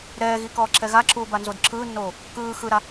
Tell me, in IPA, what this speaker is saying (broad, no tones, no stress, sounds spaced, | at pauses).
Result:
ɾ ɛː ɣ i k ɔː ǁʰ ɛ ɣ a ǁʰ uː b a n z o d ǁʰ ɯː nː oː | k ɯː x ɯ ɾ a